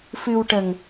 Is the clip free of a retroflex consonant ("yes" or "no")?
no